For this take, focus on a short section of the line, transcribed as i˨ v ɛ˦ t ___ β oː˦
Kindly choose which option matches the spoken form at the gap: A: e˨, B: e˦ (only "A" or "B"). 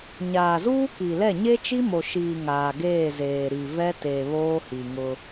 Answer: A